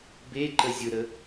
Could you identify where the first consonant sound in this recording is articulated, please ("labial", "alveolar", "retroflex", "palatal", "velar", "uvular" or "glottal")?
labial